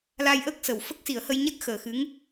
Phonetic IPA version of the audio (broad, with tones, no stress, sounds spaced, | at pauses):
l a˧ j ʔ əː˦˥ k̚ s ə˨˩ w f ə˦˥ k̚ s i˨˩˦ ə̯ h ə˧ j ɲ a˦˥ k̚ x əː˨˩ x ɨ˧˥ ŋ